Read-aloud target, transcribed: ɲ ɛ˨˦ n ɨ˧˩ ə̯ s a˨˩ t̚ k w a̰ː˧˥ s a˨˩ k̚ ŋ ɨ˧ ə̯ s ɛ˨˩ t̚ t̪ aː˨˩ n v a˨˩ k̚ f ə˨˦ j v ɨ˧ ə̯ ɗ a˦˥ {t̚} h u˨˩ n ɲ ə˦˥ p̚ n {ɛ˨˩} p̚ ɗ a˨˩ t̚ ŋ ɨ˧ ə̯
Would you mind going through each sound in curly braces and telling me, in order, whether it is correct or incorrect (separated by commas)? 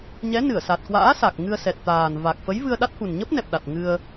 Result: correct, correct